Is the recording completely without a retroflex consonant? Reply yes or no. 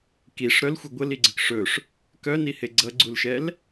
no